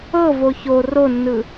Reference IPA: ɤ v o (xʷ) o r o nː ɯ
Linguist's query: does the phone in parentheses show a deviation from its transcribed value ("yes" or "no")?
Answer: yes